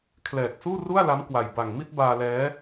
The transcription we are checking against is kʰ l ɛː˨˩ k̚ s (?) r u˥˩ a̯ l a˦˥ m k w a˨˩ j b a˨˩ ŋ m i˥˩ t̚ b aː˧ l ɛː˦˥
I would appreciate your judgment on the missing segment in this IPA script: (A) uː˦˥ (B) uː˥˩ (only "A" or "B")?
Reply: B